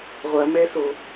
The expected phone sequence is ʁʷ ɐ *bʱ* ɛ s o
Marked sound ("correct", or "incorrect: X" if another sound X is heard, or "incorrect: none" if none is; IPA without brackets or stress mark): incorrect: m